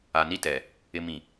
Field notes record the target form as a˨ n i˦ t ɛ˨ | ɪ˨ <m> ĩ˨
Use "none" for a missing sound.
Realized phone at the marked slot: m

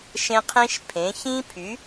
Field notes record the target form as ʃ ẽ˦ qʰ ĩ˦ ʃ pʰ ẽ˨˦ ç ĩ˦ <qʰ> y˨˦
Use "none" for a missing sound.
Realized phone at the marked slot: pʰ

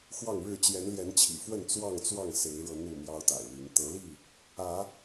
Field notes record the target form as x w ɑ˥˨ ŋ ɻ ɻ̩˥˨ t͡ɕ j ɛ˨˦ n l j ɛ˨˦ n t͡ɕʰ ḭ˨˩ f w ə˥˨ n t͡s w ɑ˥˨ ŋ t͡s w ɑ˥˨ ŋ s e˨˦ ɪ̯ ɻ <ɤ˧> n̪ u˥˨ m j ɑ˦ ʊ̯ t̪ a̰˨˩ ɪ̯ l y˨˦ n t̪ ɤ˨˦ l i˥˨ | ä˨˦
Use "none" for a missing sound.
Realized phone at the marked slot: ɤ˧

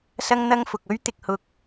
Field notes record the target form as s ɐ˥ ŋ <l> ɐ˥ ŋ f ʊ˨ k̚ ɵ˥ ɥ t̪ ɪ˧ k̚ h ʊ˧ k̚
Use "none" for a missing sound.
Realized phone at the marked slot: n̪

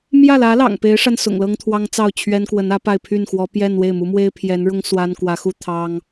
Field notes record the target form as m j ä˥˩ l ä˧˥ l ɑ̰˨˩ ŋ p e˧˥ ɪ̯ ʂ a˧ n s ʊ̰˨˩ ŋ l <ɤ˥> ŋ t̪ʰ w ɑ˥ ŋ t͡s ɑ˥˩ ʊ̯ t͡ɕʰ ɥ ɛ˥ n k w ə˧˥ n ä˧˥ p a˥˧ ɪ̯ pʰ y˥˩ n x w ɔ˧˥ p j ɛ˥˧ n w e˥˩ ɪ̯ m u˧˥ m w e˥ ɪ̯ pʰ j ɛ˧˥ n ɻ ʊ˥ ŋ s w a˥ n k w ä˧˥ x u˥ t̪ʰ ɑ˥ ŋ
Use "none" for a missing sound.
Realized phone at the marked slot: ɤ˥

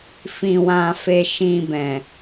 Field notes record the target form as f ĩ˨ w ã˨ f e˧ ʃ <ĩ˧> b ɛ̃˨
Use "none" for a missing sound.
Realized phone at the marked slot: ĩ˧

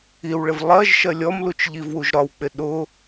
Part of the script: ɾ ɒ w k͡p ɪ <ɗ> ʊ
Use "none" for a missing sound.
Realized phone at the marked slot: ɗ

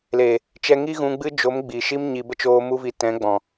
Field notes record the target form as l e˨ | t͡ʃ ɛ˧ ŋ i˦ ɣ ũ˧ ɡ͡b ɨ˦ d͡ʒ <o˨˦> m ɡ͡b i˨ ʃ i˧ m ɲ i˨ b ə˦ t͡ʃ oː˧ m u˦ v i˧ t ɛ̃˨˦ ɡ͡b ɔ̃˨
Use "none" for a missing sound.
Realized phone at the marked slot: o˨˦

